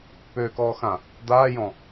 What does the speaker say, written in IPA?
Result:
p øː k ɔː x ã | d̪ aː j ɔ̃

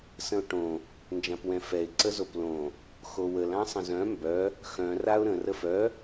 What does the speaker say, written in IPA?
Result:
s ə̃ ʊ̯ ʈ õ | n d͡ʒ ã p w ɛ̃ f ɛ ɪ̯ ǀ ə z o p l õ | x o w ə l ã sˤ ə̃ z œ̃ m b œ | x œ̃ r a ʊ̯ ɾ ə̃ r ə f œ

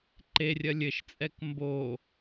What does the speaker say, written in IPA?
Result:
ǃ e rʲ ɐ lʲ ɘ ʃ t͡sʼ ɛ k m b o

